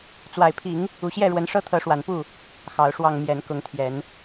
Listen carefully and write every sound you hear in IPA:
t͡swa˨˩ɪ̯pʰi˨˦ŋ | u˨˩ɕjɛ˥˨ɻwə˨˦n ʂɤ˦t̪ʰɤ˨˦ʂwa˨˩npu˥˨ | xɑ˨˦ʊ̯ ʂwɑ˨˩ŋ mjɛ˨˦n kʊ˨˦ŋt̪ʰjɛ˨˦n

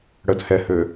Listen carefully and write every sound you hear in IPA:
ɽəd hɛhø

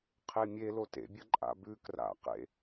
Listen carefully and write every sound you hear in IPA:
qʰemʲe lotḛbʲɐ ǃʼa̰bʉ kra̰qḛ

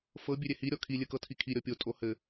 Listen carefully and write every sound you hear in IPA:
fɤ bʲøɾʲɛhi ɾʲɔkʰi lʲɘkɤtʰikʰi ɾʲɔpʲo tʼohɘ

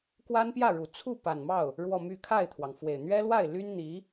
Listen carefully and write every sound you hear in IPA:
kwa˥npjä˥˩ɻu˨˩ t͡sʰu˥˩ pa˨˩nmɑ˥˩ʊ̯ | ɻwɔ˥˧my˥˧ kʰa˥˩ɪ̯t̪ʰwɑ˩ŋfwe˨˩ɪ̯ n̪ɥɛ˥lwa˥˩ɪ̯ly˥n n̪i˧˥

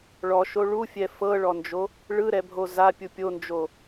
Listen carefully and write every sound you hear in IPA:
ɭɔʃo ɭufʲɛ fɤɭɔnd͡ʒo | ɭɯɾɛbʱo zapʲu pʲond͡ʒo

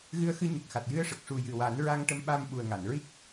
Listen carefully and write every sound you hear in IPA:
ɣɨ˧ə̯xɨ˧ɲə˨˩k̚xa˨˩t̚ jɨ˧ə̯ʂə˨˩k̚ʂu˨˩ jɨ˨˩wa˨˩˦n ɹa˧ŋʈə˧˥mɓa˧m ɓu˨˩ə̯ŋa˨˩˨nɹi˦˥k̚

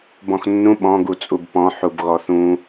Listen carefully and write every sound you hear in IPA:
bɔ̃xnːũ ɓɔ̃ ɡut͡sʼubpɔ̃ ħubɣɔθũ

